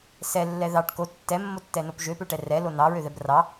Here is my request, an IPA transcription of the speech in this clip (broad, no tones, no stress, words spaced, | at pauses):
sɛlːɛ ðɑʈ ko tːɛmːotːɛnop ʒøpøʈɛ rɛlo nɑɹøðɛb rɑ